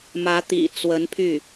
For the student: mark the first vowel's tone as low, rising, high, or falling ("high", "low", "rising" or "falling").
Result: rising